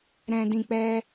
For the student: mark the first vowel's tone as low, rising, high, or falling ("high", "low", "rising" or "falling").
low